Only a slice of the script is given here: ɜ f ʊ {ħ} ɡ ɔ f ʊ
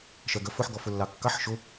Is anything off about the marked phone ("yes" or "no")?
no